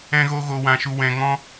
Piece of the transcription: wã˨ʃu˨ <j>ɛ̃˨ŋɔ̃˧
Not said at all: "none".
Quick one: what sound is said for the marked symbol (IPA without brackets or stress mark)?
w